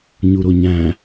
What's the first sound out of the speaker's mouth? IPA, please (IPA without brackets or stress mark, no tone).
ɲ